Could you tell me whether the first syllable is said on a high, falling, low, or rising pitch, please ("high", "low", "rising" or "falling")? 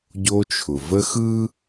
high